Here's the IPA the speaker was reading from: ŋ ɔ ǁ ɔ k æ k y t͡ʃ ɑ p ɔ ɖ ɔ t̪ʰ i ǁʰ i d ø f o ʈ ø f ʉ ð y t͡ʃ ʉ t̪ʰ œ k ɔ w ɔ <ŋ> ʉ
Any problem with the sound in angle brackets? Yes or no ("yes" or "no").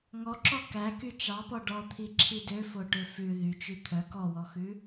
yes